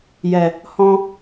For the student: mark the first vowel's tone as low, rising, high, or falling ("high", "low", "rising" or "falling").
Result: low